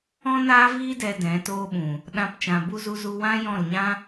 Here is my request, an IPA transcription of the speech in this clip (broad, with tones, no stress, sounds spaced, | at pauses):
ɔ̃˦ n aː˦ v iː˦ d ɛ˧ d ɛ̃˨˦ t oː˧ ɓ ũ˨ | ɗ ã˦ p t͡ʃ ã˧ b u˦ z u˦ z u˦ w ã˦ j ɔ̃˦˨ l ɲ ã˦